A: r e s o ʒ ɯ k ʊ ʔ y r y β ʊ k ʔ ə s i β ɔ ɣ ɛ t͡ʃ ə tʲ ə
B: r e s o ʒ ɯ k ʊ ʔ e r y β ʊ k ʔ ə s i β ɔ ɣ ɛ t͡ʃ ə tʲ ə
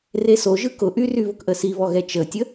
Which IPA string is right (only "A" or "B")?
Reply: A